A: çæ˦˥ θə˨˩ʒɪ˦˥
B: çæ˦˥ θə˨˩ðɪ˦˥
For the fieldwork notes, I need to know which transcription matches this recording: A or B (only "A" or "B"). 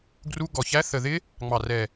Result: B